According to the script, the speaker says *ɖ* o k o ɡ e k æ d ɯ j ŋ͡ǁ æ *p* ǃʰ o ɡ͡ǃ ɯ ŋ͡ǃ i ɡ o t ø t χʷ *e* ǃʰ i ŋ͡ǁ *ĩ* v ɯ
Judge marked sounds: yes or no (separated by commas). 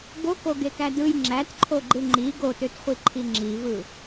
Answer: no, no, no, no